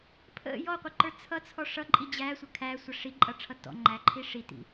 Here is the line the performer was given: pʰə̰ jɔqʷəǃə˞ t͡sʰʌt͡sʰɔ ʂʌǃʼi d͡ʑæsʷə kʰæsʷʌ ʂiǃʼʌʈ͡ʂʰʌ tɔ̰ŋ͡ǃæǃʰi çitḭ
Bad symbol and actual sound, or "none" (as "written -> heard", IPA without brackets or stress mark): ç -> ʂ